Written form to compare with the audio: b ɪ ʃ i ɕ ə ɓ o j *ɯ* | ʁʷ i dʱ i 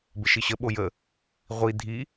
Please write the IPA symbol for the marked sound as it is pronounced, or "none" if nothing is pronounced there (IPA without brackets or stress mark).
ə